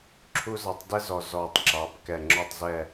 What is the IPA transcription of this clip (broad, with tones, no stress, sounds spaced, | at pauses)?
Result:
ǁʰ u˥ z ɑ˧˥ tˤ d ɛ˥ z ɔ˨˩ z ɔ˨˩ tˤ ǁ ɑ˩˧ b k ɛ˨˩ ŋ͡ǁ ɔ˦˨ tˤ z ɛ˦˨